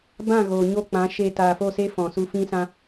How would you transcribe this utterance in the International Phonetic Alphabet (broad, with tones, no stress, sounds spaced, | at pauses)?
b ã˦˨ ɣ oː˨ ɲ o˦˨ k͡p ã˨˦ ʃ e˧ t aː˨ f o˦˨ s e˦ f ɔ̃˨ s u˧ f ĩ˦ s ã˦